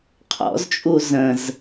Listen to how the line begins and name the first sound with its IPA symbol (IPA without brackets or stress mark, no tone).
qʰ